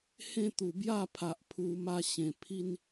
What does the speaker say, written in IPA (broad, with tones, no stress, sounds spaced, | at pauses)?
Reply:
h ẽ˥˧ t̪ u˨˩ b j a˥˧ pʰ a˨ ʔ pʰ u˧ m a˧ ɕ ẽ˨˩ pʰ i˦ n